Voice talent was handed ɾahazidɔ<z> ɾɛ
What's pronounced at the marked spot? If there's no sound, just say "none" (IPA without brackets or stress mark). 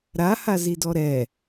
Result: none